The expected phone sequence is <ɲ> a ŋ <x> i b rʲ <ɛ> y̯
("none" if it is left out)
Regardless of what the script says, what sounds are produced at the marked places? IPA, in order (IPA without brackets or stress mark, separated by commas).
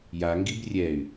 j, ɡ, ɛ